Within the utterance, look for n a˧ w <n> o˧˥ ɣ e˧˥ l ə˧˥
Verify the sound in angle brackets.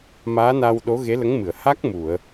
incorrect: ɗ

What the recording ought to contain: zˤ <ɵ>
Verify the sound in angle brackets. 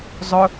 correct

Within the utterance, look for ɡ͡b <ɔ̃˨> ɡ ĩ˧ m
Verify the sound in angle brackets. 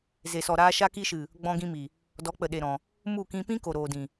incorrect: ɔ̃˧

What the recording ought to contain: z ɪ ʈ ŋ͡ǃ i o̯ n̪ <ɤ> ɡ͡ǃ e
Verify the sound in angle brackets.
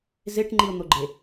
incorrect: o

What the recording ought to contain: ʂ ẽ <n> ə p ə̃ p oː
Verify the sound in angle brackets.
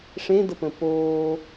incorrect: d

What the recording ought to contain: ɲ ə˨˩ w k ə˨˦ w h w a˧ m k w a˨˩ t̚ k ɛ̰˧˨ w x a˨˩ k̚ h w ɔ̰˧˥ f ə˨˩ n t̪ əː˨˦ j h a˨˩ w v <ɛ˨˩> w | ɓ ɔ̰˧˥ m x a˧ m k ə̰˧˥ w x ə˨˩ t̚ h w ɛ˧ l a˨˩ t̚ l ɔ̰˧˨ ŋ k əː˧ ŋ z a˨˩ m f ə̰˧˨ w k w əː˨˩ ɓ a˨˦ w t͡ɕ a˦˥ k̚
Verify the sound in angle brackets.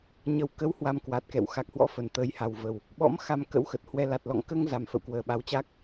incorrect: ə˨˩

